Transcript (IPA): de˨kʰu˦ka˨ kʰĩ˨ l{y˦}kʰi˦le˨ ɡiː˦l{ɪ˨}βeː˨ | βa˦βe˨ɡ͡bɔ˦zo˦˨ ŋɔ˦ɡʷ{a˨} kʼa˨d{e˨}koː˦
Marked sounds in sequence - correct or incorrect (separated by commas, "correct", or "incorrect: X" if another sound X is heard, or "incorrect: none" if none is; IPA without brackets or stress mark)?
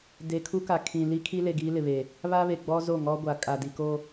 incorrect: i˦, correct, correct, incorrect: i˨